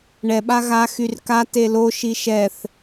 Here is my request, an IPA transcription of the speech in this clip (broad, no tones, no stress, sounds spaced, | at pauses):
ɳ ɛ ɓ a ɣ a x y r k a t e l o ʃ i ʃ ɛ θ